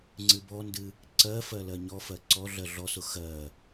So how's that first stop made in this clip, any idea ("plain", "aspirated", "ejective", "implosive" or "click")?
click